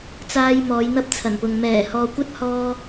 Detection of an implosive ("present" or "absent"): absent